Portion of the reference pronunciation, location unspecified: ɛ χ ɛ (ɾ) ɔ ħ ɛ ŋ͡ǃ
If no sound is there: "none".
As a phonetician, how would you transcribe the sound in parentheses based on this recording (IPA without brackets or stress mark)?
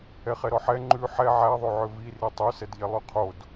ɾ